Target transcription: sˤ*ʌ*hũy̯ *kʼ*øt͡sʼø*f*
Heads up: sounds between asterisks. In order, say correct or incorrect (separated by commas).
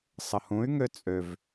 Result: incorrect, incorrect, incorrect